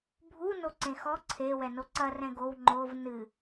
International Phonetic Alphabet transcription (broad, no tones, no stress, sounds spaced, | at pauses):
bʱ u n o ǀ ẽ x ɔ ǀʰ e w ɛ n o ǀ ɐ r ɛ̃ ɡ o w ŋ͡ǃ o v n ɨ